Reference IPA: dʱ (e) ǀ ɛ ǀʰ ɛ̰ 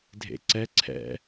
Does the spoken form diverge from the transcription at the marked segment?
yes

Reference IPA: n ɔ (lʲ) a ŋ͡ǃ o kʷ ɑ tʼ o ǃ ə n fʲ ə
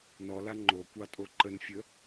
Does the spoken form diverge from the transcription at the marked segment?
yes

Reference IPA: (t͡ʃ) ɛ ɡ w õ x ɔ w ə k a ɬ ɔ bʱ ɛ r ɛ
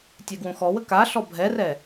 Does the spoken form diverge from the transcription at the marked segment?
yes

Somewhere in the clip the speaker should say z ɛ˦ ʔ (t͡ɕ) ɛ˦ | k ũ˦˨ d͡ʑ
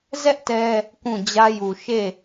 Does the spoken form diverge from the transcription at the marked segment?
yes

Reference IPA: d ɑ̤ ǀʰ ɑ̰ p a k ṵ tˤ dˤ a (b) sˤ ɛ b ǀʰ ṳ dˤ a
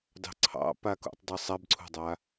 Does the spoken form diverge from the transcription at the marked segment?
yes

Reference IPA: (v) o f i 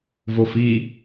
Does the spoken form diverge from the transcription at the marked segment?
no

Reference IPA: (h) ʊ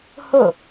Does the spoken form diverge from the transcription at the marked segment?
no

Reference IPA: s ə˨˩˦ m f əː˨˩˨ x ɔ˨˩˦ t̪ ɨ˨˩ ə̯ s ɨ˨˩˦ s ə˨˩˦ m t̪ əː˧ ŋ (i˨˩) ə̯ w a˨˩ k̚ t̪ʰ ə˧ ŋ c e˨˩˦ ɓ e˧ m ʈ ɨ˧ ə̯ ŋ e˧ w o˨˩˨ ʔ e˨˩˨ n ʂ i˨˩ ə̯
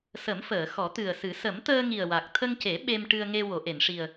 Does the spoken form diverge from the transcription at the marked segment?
no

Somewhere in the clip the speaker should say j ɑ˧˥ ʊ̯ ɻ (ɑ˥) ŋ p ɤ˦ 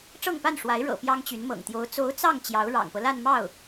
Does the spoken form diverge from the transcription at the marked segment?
yes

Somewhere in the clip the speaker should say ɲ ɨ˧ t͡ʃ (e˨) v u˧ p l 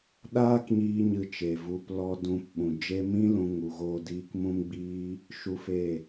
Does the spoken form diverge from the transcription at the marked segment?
no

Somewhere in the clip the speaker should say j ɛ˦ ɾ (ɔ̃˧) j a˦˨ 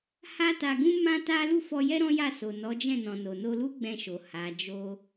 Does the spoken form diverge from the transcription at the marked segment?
yes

